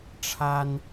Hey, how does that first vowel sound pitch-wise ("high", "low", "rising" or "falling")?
high